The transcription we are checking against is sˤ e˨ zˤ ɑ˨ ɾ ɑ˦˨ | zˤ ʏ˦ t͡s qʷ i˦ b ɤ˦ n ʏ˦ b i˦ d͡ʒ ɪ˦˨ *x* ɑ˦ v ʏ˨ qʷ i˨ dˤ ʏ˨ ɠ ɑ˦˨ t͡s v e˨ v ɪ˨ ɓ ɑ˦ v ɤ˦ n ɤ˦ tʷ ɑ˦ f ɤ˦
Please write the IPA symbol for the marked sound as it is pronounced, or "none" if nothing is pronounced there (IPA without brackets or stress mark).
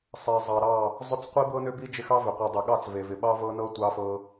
x